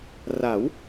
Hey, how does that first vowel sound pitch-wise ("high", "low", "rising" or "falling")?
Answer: rising